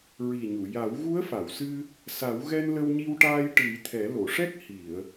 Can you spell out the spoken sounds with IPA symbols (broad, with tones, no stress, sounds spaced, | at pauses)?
ɹ i˨˩ ɲ u˨˩˨ j a˨˩˦ w ɣ u˧˥ ə̯ f a˨˩˨ w s ɨ˧ | s a˨˩˦ w ɣ ɛ˧ n l ə˧ w ɲ i˧ w ʈ aː˧ j ʈ ɨ˨˩˦ j t̪ʰ ɛ˨˩˦ l o˨˩˨ ʂ ɛ˦˥ k̚ h i˨˩˨ ə̯